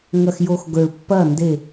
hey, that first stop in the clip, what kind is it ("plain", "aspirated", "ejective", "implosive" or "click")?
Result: plain